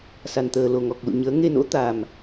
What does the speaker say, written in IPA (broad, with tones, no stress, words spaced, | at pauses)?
sa˨˩nt̪əː˨˩ lo˨˩ŋɔ˨˩k̚ lṵ˧˨ɲəː˨˦ ŋe˧no̰˧˥t̪a˨˩m